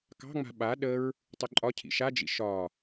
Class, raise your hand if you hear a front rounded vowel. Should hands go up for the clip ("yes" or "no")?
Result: no